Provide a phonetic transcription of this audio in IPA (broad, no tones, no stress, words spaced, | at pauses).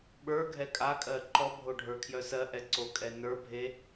ɓə˞ɡʱɛ kʼakʼɜ ǃɔbʱo ɖʱə˞kʰjœsɜʔɛ ǀokʼɛnə˞bʱe